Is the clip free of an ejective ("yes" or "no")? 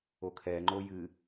yes